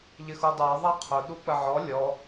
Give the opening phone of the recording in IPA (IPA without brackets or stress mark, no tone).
ʎ